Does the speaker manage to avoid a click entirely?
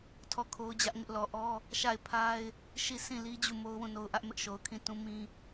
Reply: yes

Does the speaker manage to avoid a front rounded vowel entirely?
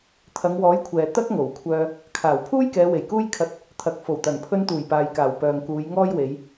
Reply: no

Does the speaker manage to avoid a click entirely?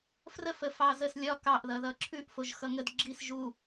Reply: no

